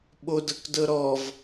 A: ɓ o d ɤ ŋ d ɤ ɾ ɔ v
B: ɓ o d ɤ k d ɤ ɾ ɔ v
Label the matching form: B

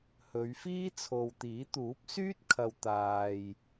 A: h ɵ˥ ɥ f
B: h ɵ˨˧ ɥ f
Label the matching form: B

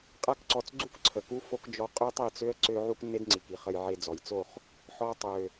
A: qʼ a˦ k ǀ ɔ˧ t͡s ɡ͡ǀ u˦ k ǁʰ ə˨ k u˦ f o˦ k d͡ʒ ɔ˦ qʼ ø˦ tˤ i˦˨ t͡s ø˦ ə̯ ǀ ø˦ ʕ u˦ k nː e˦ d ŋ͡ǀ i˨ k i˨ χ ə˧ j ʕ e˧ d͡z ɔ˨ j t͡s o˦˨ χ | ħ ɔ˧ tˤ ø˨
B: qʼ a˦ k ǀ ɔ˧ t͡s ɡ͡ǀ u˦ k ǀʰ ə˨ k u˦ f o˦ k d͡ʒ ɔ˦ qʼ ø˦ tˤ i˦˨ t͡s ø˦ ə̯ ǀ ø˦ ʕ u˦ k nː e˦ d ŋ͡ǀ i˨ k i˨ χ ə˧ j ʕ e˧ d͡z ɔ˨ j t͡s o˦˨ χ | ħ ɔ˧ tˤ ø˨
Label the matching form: B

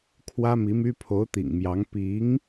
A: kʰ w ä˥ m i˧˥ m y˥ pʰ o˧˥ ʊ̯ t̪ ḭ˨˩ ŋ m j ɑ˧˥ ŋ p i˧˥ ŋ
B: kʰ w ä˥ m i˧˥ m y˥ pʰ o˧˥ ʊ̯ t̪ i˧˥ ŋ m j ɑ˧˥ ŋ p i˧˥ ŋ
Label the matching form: A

